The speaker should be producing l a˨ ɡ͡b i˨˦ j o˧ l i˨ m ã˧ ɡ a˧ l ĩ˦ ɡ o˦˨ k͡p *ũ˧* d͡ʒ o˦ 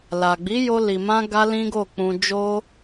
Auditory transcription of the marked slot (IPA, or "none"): ũ˧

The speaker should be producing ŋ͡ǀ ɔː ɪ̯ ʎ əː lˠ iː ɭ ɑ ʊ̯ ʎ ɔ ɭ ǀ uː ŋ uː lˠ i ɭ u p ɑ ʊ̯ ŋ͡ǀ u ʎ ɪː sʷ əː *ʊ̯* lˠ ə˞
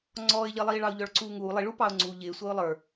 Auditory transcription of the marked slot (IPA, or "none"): ʊ̯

